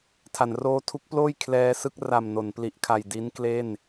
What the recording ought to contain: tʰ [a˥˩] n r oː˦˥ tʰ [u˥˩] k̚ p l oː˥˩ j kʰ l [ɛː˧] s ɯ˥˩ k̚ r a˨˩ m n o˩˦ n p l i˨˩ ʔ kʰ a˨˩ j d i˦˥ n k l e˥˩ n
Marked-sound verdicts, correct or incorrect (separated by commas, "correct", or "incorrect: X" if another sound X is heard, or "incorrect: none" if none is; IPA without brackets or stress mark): incorrect: a˩˦, incorrect: u˦˥, correct